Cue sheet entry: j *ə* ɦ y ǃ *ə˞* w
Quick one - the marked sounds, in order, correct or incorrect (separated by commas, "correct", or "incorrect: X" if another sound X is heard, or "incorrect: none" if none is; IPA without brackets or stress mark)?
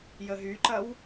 correct, incorrect: ɐ